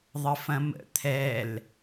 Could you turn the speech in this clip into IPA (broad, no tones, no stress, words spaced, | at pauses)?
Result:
ðˤəfɐ̃mə̰ t̪ʰɛl